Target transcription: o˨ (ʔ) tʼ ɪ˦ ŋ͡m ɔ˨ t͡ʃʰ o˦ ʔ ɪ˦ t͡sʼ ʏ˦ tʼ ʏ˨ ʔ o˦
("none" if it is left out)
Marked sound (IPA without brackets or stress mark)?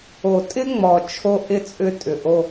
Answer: none